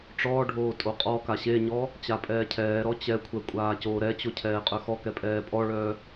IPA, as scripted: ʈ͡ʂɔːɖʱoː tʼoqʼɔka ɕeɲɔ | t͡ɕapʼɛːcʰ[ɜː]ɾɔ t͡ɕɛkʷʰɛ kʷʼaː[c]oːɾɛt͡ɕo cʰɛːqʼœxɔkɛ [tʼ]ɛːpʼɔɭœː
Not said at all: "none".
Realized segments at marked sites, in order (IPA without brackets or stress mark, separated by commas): ɛː, c, pʼ